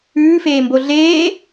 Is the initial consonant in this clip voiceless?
yes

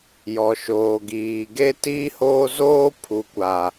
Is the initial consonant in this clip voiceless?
no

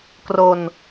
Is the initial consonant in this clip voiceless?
yes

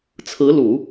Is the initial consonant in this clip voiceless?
yes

